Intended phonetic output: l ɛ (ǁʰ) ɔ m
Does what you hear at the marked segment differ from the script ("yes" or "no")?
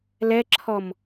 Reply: no